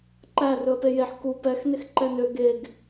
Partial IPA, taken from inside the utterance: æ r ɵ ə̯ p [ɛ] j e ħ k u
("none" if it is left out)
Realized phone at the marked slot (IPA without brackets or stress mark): e